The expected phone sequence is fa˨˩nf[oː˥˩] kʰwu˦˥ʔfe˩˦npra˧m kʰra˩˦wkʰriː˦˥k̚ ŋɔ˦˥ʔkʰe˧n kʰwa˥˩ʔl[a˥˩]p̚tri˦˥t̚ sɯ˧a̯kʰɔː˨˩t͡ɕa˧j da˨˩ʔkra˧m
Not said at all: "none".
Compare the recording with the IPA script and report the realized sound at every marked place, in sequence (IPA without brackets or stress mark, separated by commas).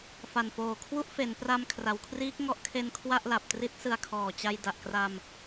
oː˨˩, a˨˩